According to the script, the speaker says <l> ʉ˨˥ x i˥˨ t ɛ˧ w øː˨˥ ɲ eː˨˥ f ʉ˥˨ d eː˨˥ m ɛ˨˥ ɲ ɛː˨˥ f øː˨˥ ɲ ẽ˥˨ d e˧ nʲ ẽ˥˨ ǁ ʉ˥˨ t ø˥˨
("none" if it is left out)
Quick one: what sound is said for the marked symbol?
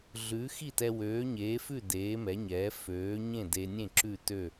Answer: ɮ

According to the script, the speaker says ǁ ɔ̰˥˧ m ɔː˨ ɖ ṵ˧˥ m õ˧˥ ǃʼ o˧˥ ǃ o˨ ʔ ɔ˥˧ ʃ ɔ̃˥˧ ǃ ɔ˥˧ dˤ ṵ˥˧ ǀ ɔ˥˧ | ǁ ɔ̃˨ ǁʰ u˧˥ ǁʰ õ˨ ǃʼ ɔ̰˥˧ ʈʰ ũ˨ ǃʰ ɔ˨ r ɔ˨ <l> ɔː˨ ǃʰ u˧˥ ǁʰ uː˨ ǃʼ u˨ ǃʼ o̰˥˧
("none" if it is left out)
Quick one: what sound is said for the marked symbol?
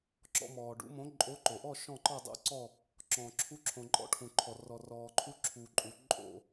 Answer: r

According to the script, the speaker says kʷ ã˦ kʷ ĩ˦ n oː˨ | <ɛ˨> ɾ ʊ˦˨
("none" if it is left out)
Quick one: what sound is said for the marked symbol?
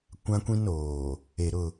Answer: e˨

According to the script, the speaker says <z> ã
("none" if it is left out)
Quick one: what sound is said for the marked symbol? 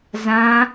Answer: z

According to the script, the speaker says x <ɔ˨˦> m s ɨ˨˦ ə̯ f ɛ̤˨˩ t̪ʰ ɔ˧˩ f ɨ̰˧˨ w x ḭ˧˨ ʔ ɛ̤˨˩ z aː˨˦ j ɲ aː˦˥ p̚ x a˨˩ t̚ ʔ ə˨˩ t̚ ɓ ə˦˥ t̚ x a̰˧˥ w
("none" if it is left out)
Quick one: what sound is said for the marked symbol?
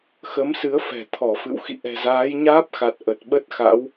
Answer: ə˨˦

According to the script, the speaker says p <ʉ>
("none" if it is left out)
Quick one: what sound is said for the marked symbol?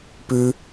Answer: ʉ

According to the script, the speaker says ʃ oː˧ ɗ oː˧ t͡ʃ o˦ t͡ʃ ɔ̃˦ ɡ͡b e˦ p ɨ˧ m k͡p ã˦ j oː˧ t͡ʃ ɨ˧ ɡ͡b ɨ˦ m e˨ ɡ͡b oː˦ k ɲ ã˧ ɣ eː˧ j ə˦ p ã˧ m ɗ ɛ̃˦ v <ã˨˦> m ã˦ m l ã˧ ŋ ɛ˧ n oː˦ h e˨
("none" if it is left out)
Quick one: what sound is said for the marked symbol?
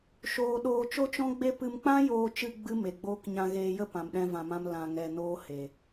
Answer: ã˧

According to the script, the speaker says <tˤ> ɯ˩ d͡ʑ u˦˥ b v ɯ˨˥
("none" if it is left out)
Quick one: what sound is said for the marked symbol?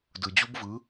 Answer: d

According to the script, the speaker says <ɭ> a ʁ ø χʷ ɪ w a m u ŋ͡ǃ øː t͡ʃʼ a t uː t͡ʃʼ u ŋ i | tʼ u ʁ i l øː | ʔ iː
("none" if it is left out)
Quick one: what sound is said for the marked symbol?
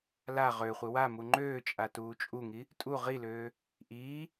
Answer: l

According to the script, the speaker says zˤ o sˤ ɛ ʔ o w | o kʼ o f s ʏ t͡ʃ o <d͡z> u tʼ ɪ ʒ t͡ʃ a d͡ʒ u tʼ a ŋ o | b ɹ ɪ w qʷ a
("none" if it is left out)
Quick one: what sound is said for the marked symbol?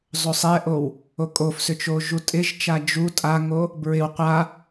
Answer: ʒ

